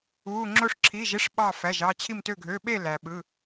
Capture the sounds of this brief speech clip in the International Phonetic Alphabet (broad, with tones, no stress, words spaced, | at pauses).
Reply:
u˩˧˩ ŋ͡ǁo˧ʂǁʰi˩˧˩ʒe˥ʂɓɑ˧˩ fæ˩˧˩ʒɑ˧ t͡ɕʰi˧˩mtø˧˩ɡʱø˩˧˩ɓe˥˨ læ˩ɓɯ˩˧˩